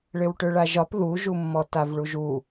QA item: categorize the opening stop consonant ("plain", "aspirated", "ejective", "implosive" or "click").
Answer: plain